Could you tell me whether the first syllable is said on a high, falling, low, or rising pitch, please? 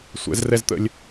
rising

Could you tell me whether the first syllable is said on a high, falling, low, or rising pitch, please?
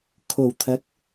low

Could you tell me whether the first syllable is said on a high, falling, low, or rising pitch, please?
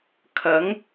rising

